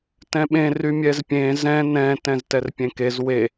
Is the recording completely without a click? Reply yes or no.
yes